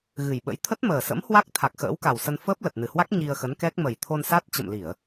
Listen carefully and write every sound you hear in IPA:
ɣɨ˨˩jɓə̰˧˥j t̪ʰə˦˥t̚məː˨˩sə̰˧˥m hwa˦˥k̚ t̪ʰa˨˩k̚xə̰ː˧˥wka˨˩wsə˧n fəː˦˥p̚lə˨˩t̚nɨ˧˩hwa˦˥k̚ ɲi˧ə̯xə˨˦nkɛ˦˥k̚ mə˨˩jt̪ʰo˧nsa˦˥t̚ t͡ɕə̰˧˨mli˧˩˨ə̯

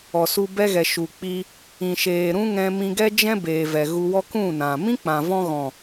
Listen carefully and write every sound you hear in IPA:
ɔ˨su˧bɛ˦ɣɛ˨ ʃu˨ k͡pi˧ | ĩ˨ʃeː˨ ɾũ˦ŋɛ̃˧ mĩ˧ɡɛ˦d͡ʒɛ̃˦ beː˨vɛ˨ɣu˧wɔ˦ kũ˦˨nã˨ mĩ˦k͡pã˨vɔ̃˧ɣɔ̃˨

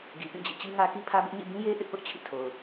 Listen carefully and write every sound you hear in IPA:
ɡi˨pĩ˦˨d͡ʑḭ˦˨ t͡ɕi˦ŋä˦ki˦ pʰä˦bɪ˦ʔ ɲḭ˦˨ bĩ˦je˦ ʔɪ˦ʔpʊ˦ʔ t͡ɕʰḭ˦˨tʰo˨ʊ̯

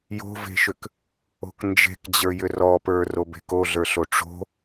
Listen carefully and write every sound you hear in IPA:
jo̤ve̤ʃʏk | o̤knd͡ʒe̤kd͡ʑə˞ jʏrɔpə˞ robe̤koɮə˞ ɬoʈ͡ʂo̤

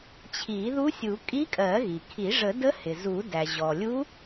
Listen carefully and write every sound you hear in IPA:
t͡ɕʰi˨˩˦ðu˧˥sʲu˨˩˦ kʼi˧˥kʼɜ˨˩˦ɣi˩kʰi˨˩˦ ʐə˨˩˦də˧˥hɪ˩ zu˨˩˦ dæ˩ʑɔ˩lʲu˧˥

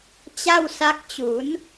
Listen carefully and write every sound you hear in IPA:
t͡ɕa˥˩wsa˦˥k̚t͡ɕu˩˦n

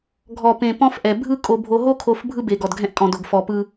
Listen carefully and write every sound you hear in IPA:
ɡʱɔ˨pẽ˨ pɔ̃˦fʔɛ˨ bʱɯ˦ kʼo˨bʱo˨ɦo˦kʰo˨f bʱɯ˦be˨ ɡɔ˨dɡʱɛ̃˦ʔkʼɔ̃˨do˨ɡ fɔ˨pɯ˦

